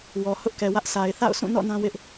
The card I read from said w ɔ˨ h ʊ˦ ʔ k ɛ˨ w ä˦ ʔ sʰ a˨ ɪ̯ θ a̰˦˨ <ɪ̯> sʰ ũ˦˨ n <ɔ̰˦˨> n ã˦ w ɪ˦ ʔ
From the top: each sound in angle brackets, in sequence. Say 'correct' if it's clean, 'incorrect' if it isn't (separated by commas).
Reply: incorrect, correct